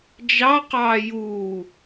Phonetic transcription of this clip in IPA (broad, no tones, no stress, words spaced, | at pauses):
d͡ʒɑqɑː juː